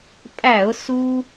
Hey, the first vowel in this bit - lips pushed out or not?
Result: no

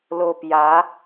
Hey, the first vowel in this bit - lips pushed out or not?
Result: yes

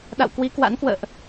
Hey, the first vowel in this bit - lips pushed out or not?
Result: no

